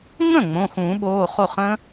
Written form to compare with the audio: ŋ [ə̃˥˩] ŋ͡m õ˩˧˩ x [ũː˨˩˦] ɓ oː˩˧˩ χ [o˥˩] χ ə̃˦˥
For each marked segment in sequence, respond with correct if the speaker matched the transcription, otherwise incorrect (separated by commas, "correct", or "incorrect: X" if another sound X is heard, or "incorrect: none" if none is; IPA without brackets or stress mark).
correct, correct, correct